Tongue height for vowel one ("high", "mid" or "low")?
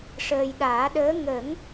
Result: mid